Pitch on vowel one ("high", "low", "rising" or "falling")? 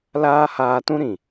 high